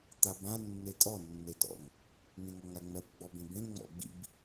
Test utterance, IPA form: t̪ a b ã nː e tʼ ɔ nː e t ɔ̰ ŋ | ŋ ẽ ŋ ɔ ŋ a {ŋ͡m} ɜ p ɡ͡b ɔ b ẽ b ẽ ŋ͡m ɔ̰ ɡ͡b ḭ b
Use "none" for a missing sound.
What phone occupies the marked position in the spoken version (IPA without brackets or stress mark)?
ŋ͡m